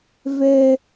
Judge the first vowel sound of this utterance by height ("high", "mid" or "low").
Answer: mid